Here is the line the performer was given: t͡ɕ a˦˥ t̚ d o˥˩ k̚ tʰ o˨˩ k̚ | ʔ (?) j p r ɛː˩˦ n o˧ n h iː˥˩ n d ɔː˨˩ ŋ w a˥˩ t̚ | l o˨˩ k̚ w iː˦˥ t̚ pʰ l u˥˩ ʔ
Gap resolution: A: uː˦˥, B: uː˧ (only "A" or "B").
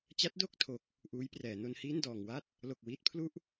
A